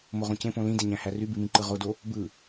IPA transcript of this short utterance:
moʁõcẽpõ lĩdeɲæ̃hæ rybimĩǃɯ ʁodo | bɯ

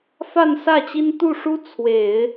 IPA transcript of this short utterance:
fa˥˧nsä˥˩t͡ɕi˥n t̪u˥˩ʂu˥ t͡sʰwe˨˩˦ɪ̯

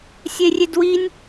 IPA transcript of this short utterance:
sʲerʲedwinʲ

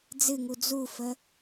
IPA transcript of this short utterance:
d͡zɨŋu d͡zufə

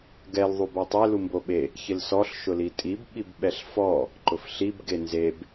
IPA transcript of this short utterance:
ɡɛl ðˤubɔtˤe lumboɓe | çɪlsɔɬ ʃʊlitʼib ɓibɓɛɬfɔ | ǃʊfɬib ɡenzeb

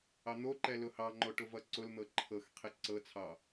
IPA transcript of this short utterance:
ɑn̪oǃɛ lʊhɑŋ͡ǃo ʈʊvʌǀʊln̪ɤ ǃʰɤxqʰe ǀɤt͡sʰɑ

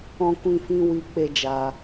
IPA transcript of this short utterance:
ɔ̃˦kʷĩ˦fĩ˦ wi˦ k͡pe˦d͡ʒa˧

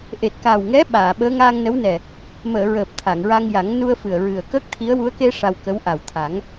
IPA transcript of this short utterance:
ʔe˨˩t̚ka˨˩wŋɛ˧˥ ɓaː˨˩˨ɓəː˧˥ ŋaː˧ŋnə˧˥wnɛ˨˩ | məː˨˩˨ ɹəː˨˩p̚ t̪ʰa˨˩˨ŋɹa˧ŋja˨˩˦ŋ nu˧ə̯fɨ˨˩ə̯ɹɨ˨˩ə̯ kəː˦˥k̚t̪ʰi˧˥ə̯ wu˧˥ə̯ke˧ ʂa˧wkə˧˥w ʔa˨˩wt̪ʰa˨˩˦ŋ

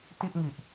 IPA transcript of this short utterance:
ti˥˩ʔŋi˨˩ʔ

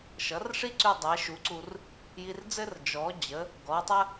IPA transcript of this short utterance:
ʃʌ˩˥rʂi˥ǀy˧ dˤɛ˩˥ʃu˩˥ǀu˧r | ji˧rd͡zɘ˥r d͡ʒɔ˩˥ d͡ʑə˩˥ | ɡɔ˩˥tˤə˥

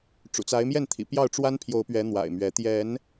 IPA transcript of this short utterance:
ʈ͡ʂṵ˨˩t͡sa˨˦ɪ̯mjɛ˥˨nt̪ʰḭ˨˩ pjɑ˥˨ʊ̯ʈ͡ʂwa˦npʰjo˨˦ʊ̯pɥɛ˨˦ n̪wa̰˨˩ɪ̯mɥɛ˨˦ t̪jɛ˨˦n

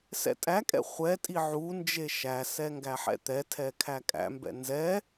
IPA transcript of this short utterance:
sɛ̰tʼækʼɛ̰ χʷɛtʼi ʕu nd͡ʒeʃæsɛ ŋɡæħɛ̰t̪ɛtʰɛ kʰækʼæ̰mbɛ̰ nzɛ

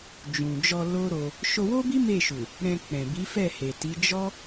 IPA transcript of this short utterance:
d͡ʒũ˨d͡ʒɔ˧ lo˦ɾo˧ | ʃo˧wo˦bi˦ me˦˨ʃu˨ | ɾɛ̃˧k͡pɛ̃˨ bi˨˦fɛ˦˨he˨ti˨˦ d͡ʒɔ˦

